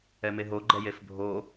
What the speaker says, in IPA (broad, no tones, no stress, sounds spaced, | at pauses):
ɛ m e ɦ o ɡ͡ǃ ɛ j e f bʱ o